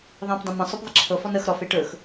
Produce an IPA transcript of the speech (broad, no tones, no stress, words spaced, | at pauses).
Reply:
ðˤẽpdˤə̃mə̃sˤɵp ðˤəǁʰɤfɔn əx ɾɔfe ʈɵx